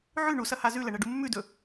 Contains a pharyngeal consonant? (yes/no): yes